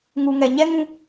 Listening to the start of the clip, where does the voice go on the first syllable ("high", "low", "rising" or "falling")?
low